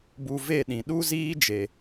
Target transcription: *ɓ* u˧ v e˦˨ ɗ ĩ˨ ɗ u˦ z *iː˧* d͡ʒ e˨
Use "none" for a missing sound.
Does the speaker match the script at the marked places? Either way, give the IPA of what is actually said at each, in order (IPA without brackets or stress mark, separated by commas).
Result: b, iː˦